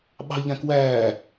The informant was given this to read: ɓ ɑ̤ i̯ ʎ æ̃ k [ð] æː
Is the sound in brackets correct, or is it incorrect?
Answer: incorrect